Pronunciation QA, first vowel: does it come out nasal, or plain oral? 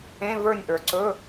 nasal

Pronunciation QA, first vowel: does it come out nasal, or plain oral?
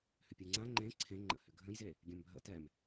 oral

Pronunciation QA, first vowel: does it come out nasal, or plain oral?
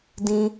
nasal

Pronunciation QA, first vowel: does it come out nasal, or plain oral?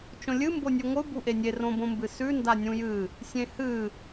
nasal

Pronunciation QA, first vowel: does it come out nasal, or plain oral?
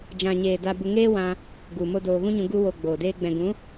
nasal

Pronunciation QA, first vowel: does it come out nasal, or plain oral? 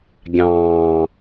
nasal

